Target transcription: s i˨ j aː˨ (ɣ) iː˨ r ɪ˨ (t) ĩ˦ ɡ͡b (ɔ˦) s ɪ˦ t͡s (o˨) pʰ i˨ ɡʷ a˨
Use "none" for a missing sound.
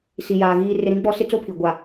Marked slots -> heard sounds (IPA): ɣ, ɾ, ɔ˦, o˦

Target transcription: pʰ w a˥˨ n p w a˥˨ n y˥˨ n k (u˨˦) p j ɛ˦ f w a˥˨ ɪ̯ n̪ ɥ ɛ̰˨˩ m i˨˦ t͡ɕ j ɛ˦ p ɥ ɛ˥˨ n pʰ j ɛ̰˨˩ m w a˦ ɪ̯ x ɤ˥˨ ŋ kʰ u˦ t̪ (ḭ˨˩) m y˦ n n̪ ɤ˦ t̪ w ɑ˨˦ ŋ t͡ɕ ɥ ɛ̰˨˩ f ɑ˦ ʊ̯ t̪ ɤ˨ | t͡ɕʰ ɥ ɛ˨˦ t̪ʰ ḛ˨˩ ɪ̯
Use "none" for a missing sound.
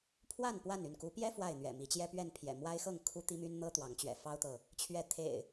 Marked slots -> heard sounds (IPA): u˨˦, i˦

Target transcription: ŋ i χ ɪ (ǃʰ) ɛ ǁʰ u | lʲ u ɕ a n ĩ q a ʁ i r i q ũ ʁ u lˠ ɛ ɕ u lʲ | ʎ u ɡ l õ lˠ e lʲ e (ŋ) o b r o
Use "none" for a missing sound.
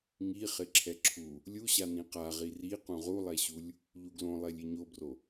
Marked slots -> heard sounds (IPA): ǁʰ, ɲ

